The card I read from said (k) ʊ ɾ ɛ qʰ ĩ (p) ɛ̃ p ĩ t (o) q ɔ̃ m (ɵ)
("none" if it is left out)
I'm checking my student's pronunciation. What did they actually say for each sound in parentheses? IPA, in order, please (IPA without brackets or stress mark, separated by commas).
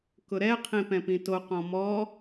k, p, o, ɔ